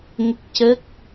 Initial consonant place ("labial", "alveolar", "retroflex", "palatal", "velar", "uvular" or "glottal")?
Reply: velar